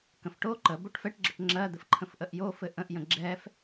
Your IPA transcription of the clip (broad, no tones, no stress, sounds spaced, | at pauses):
k ə̃ f ʈ o ǃ ə b o ʈ f ɛ ʈ ɡ͡ǁ ə ʈ ŋ͡ǁ ɜ d̪ ɘ f ǃʰ ə̃ f ʔ ə ʔ j o f ɘ ʔ ə̃ ʔ j ə̃ ɡ͡ǁ ɛ f